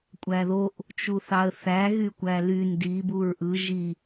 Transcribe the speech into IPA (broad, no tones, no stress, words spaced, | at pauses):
kʷʼæðoʔ | t͡ʃuθɑə̯θæ ɣykʷæly ndi buɹʔɯ ʒi